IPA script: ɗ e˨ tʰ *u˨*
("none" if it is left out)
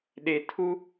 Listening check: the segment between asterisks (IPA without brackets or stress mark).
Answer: u˦